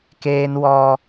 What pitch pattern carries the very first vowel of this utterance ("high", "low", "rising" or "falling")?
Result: high